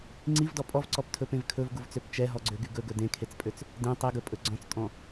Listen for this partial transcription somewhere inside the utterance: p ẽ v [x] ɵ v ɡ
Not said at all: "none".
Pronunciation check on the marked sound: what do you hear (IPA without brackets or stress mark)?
kʰ